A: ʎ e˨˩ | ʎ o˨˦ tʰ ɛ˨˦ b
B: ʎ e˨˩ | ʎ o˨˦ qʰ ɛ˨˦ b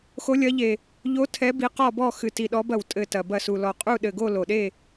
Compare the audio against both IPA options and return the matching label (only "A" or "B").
A